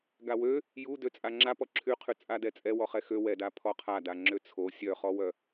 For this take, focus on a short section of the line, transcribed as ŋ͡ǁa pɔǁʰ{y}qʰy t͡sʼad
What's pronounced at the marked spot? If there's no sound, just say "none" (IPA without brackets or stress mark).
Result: y